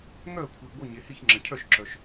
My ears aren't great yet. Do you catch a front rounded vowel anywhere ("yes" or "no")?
yes